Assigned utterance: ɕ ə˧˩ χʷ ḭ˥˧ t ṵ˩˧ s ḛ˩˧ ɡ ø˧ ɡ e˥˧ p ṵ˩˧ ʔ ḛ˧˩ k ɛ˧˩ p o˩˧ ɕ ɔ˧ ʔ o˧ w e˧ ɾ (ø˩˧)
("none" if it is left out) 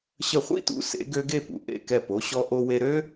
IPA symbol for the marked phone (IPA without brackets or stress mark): ø˥